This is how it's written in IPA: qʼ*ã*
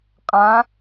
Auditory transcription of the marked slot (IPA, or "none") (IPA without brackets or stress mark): ã